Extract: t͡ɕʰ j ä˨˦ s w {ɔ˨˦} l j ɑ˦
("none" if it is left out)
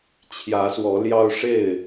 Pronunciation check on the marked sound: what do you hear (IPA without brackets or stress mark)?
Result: ɔ˨˦